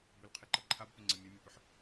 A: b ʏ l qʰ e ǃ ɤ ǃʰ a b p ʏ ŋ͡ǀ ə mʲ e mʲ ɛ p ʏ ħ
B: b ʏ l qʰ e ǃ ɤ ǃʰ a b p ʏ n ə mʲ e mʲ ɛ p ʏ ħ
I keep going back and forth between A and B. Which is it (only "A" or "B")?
A